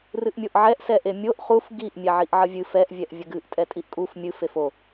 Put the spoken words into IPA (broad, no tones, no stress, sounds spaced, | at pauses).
r ɨ ʔ mʲ o ʔ ʕ ɛ ʔ s ɛ ʔ e mʲ o ʔ χ u f ɡ i ʔ mʲ ɛ ʕ i ʔ ʕ ə vʲ ɨ f ɛ ʔ vʲ ɛ ʔ vʲ ə ɡ ɨ ʔ tʼ ɛ tʼ i ʔ kʼ u f mʲ ɨ f e f o